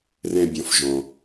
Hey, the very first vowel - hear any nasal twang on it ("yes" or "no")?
yes